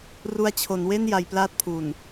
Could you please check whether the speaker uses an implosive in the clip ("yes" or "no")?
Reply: no